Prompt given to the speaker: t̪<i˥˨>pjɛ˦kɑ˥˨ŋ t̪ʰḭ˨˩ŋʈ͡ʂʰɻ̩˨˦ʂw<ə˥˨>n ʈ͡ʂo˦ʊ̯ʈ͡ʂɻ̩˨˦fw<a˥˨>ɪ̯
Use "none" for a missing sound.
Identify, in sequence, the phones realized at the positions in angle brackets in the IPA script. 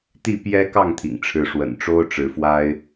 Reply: i˥˨, ə̰˨˩, a˦

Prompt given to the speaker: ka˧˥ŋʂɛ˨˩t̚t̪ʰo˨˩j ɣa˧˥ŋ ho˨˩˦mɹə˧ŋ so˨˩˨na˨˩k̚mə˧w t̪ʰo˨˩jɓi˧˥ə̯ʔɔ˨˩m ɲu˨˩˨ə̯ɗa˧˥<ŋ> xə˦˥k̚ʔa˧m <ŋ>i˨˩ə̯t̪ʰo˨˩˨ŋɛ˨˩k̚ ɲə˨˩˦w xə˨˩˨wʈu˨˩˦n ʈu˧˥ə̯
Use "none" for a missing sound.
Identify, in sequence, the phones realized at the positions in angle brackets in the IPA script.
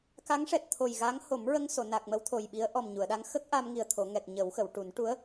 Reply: ŋ, ŋ

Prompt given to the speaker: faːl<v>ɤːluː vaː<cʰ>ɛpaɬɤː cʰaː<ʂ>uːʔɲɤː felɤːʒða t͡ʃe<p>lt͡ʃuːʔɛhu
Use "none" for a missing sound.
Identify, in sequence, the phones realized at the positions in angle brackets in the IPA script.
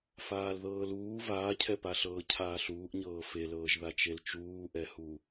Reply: ð, cʰ, ɬ, none

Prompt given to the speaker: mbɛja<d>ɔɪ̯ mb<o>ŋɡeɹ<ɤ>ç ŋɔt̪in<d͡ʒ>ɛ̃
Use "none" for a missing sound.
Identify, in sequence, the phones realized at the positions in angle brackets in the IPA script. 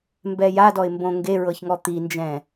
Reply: d, õ, ɤ, d͡ʒ

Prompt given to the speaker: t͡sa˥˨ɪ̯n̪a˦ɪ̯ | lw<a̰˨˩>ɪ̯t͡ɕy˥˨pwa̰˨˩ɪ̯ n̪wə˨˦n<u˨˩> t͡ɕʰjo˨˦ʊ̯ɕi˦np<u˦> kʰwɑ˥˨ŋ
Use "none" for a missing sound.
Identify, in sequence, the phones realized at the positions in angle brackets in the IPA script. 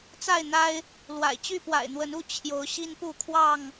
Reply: a̰˨˩, u˥˨, u˥˨

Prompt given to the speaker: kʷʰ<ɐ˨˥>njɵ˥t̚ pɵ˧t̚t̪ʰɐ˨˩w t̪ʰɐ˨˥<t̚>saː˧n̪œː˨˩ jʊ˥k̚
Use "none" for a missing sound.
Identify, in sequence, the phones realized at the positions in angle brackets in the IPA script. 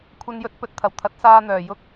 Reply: ɐ˥, t̚

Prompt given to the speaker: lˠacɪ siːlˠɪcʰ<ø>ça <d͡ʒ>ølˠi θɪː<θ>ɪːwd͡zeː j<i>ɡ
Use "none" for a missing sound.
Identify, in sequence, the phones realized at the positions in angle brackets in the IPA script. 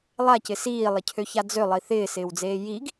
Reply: ø, d͡z, s, i

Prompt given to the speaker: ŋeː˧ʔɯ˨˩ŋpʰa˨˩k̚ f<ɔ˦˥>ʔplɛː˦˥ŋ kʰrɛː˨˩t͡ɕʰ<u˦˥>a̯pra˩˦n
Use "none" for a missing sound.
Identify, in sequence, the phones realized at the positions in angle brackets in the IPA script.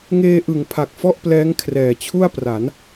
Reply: ɔ˥˩, u˥˩

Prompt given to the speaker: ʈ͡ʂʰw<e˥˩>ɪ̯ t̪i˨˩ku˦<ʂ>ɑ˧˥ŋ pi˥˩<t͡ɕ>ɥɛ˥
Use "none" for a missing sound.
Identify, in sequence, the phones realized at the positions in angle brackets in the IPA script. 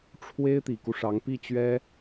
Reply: e˥, ʂ, t͡ɕ

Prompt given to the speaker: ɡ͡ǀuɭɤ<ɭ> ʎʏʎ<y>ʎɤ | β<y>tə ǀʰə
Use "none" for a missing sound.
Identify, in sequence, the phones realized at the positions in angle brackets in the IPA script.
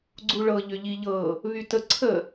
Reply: none, i, y

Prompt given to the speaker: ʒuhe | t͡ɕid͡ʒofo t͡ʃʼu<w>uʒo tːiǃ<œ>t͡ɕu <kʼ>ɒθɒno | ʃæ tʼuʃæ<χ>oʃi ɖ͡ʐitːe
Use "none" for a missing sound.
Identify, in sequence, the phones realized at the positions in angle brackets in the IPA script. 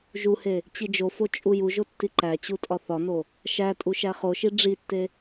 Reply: j, æ, tʼ, χ

